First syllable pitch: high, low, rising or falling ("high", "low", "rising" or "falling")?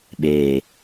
low